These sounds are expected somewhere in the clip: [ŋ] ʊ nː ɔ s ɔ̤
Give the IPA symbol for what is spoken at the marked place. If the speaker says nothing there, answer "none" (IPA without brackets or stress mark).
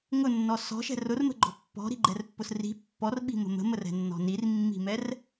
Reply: ŋ